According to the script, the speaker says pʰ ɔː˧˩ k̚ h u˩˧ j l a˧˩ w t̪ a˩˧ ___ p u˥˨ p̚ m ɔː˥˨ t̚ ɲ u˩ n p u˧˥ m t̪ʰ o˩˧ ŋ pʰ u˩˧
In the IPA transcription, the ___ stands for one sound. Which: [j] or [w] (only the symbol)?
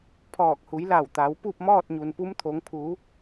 w